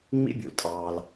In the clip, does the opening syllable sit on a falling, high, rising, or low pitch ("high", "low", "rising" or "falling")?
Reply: high